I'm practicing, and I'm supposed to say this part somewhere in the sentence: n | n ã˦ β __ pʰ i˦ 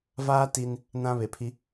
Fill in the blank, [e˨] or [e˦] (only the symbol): e˨